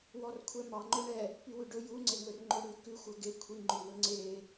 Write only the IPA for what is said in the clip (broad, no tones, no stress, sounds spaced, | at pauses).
w ɔ r kʷʰ ɛ m ɑ ŋ͡ǃ ɵ ɳ ɛ | p y w ʉ ɖ ɵ j u ŋ͡ǀ e ŋ ɵ r ŋ͡ǃ o ɽ ʉ k ʉ xʷ œ ɡ e kʷʰ i ŋ͡ǃ ʉ w ɵ ŋ͡ǀ e